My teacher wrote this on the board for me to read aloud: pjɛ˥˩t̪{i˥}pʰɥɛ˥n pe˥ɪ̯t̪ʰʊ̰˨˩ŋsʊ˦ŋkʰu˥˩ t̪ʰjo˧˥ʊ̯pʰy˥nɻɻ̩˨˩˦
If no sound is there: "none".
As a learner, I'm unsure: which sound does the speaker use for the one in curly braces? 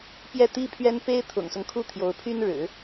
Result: i˥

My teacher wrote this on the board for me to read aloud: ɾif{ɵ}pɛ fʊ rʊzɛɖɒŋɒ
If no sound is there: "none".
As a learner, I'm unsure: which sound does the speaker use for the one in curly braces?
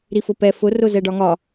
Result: ʊ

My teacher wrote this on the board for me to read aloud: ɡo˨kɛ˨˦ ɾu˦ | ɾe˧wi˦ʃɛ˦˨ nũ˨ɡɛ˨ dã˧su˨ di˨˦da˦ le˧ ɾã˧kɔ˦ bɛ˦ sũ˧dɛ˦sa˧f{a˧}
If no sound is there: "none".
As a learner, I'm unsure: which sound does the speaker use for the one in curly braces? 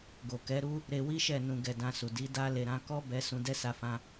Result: ã˧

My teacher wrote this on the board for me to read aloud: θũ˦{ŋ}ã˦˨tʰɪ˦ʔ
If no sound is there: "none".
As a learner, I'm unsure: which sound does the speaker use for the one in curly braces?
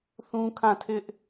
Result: kʰ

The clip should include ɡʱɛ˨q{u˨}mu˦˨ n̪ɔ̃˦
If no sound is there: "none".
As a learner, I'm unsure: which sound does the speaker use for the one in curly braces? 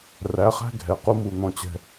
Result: u˦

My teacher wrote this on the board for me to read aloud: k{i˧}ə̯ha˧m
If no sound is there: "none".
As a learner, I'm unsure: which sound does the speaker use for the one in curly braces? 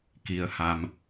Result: i˧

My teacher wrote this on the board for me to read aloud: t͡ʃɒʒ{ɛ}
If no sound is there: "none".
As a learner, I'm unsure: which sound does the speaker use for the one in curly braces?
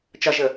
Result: ə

